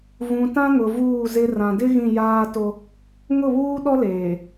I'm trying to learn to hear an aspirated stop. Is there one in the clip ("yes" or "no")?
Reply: no